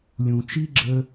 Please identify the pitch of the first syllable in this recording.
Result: low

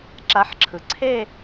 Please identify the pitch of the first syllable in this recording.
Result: rising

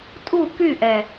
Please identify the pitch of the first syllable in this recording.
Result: falling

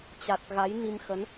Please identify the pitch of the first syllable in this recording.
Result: low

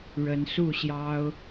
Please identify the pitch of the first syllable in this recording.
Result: rising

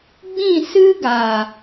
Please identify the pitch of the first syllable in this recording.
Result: falling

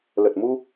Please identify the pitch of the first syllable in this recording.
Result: low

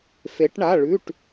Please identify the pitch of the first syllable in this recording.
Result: rising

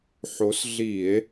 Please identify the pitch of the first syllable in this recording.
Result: rising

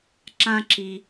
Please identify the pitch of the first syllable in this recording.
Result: high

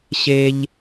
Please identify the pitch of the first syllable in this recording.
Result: low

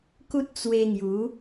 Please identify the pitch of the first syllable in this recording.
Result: high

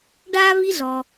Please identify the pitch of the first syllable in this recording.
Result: high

